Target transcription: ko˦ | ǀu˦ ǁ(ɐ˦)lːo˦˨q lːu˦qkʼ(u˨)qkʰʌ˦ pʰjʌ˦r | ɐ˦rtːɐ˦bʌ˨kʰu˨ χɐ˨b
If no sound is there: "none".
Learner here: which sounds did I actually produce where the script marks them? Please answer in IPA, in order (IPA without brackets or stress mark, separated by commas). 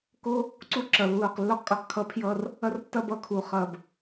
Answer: ɐ˨, o˨